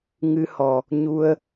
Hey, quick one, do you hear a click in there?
no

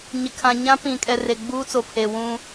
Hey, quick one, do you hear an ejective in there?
yes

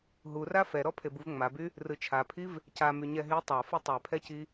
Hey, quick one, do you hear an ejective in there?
no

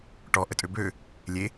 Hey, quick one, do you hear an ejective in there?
yes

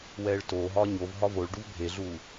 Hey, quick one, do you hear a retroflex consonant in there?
yes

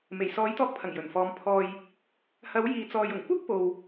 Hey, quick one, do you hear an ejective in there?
no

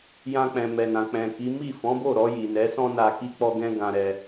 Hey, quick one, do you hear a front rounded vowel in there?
no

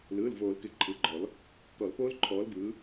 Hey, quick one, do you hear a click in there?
yes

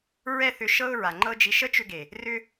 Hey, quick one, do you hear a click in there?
yes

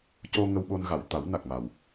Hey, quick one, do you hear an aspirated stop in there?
no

